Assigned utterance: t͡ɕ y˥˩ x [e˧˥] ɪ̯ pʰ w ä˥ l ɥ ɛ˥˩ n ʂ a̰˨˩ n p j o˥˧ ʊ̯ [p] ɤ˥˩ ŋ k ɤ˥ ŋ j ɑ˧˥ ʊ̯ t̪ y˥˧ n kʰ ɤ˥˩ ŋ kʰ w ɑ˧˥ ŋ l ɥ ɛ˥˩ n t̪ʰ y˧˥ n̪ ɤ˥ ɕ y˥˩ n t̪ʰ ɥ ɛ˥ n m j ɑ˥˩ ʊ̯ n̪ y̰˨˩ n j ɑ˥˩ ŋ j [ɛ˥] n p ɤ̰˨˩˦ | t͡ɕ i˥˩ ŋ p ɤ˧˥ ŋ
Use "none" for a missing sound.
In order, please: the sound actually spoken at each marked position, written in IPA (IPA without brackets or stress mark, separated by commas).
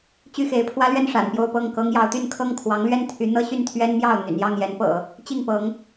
e˧˥, p, ɛ˧˥